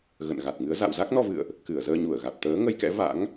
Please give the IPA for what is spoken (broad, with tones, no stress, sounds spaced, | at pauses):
ɣ ə̰˧˨ n ɣ a˨˩ t̚ ŋ ɨ˨˦ ə̯ z a̰˧˨ w z a˦˥ k̚ n ɔ˧ v ɨ̰˧˨ ə̯ ʔ | k ɨ˧˩ ə̯ z əː˧ ɲ u˧˩ ə̯ ɣ a˨˩ t̚ t̪ əː˨˦ ŋ ə˧ j k ɛ̰˧˥ v a̰˧˥ ŋ